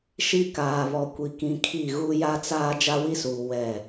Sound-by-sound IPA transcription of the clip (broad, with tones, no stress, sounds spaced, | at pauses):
ʃ i˦ k aː˨ β ɔ˨ kʷ i˨ k ĩ˨ kʰ i˦˨ ɣ u˦ j a˦ t͡s aː˦ d͡ʒ a˦ w i˦ s uː˨ w ɛ˦˨